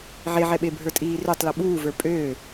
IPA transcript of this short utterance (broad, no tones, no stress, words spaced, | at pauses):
ʕeʕɛɓe bʱə˞tʼiːrøtˤ lʌɓuːvə˞ pʼøː